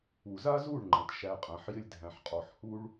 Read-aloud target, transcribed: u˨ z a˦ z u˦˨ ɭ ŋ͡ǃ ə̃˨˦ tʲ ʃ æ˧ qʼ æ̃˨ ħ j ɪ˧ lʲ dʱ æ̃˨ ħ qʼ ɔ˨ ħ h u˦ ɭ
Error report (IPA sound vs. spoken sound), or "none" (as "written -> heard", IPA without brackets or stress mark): tʲ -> t